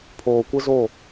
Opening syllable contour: low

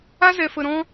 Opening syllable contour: high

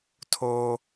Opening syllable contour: high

